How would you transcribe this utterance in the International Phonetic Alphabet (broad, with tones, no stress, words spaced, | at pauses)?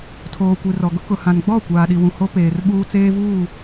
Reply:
tʰoː˨kʷi˨rɔ˨ ɡʊ˦kʊ˨hã˨n ɡ͡bɔ˦˨ kʷaː˨ɗi˨wũ˨ ho˦peː˨rɓuː˦ t͡seː˦vuː˦˨